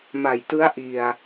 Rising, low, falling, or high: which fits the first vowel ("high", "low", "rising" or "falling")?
low